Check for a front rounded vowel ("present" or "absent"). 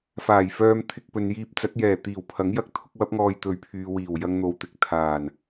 present